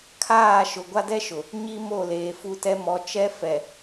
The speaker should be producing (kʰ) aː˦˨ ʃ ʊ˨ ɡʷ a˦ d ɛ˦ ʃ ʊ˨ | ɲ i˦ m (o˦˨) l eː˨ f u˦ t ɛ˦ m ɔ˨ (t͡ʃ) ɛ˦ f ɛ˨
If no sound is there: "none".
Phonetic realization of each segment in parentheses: kʰ, o˦˨, t͡ʃ

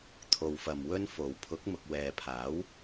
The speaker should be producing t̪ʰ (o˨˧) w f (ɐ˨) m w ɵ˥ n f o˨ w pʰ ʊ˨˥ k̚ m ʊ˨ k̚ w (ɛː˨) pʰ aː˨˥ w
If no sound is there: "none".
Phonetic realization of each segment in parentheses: o˨, ɐ˨, ɛː˨

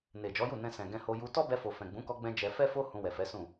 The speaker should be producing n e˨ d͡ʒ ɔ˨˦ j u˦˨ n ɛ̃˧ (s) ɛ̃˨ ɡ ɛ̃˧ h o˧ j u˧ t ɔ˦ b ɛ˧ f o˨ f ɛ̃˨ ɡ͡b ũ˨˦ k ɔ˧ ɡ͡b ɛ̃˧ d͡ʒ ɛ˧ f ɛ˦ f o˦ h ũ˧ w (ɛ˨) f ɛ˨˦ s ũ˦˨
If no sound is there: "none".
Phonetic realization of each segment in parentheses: s, ɛ˨

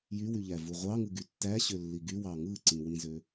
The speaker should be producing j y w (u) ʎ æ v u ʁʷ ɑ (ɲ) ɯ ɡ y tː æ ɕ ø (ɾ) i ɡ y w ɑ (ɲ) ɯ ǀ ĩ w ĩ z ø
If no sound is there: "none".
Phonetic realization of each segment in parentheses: y, ŋ, lː, ŋ

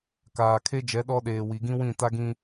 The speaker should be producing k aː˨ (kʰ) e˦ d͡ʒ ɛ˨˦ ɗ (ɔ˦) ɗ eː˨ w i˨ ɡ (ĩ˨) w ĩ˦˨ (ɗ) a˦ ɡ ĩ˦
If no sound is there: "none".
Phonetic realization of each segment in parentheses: kʰ, ɔ˦, ĩ˦, t

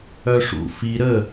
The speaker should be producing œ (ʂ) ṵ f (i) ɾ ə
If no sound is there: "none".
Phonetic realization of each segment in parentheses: ʂ, i

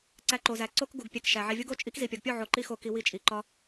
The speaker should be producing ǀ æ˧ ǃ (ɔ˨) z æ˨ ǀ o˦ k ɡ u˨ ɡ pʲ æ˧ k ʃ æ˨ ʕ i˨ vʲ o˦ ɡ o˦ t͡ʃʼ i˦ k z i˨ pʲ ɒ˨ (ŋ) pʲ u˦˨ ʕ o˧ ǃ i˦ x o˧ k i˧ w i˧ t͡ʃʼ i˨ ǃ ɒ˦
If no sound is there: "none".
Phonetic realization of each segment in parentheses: o˨, ɡ

